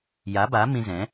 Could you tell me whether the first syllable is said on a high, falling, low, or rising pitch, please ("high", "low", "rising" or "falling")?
rising